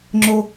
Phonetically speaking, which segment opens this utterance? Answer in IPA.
ŋ͡ǁ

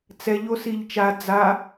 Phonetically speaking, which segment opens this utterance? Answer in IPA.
t͡s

